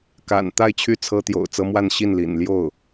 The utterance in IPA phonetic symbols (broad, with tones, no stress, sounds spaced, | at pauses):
k a̰˨˩ n t̪ a˥˩ ɪ̯ t͡ɕʰ y˥ t͡sʰ ɤ˥ t̪ j o̰˨˩ ʊ̯ t͡s ɤ˥ m w a˥˧ n ɕ i˥˩ n l ḭ˨˩ n l j o˥˩ ʊ̯